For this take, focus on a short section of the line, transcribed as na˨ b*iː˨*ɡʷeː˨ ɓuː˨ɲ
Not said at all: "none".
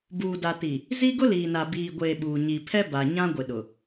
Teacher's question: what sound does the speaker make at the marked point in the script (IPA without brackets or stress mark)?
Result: iː˨